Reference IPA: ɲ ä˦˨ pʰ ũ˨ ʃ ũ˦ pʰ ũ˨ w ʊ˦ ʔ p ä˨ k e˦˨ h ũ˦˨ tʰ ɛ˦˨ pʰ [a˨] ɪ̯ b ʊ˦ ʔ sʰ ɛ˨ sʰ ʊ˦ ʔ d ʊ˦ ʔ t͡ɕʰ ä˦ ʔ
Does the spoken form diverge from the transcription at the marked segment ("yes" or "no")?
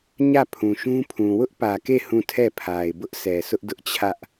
no